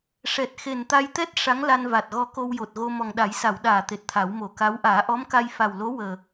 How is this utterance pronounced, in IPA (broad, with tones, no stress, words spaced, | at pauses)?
ʂɛ˨˩t̚ xe˨˩nt̪a˧jt̪ɛ˦˥t̚ ʂa˧˥ŋla˧nva˨˩t̚ɣɔ˧˥ ko˧wjo˨˩t̚ɣo˧ mɔ˨˩ŋɗa˨˩˦jsa˨˩˨wɗaː˨˩˨ t̪e˨˩t̚t̪ʰa˨˩˦wmo˨˩˦ka˧˥w ʔaː˨˩˦ʔɔ˧˥mka˧j fa˨˩wlo˧˥wəː˨˩